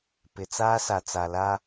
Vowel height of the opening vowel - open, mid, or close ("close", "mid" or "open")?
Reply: close